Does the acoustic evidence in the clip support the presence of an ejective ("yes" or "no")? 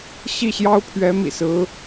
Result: no